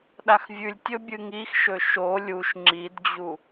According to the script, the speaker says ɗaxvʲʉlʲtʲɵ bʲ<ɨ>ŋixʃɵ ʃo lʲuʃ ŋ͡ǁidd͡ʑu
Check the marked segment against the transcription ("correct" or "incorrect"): correct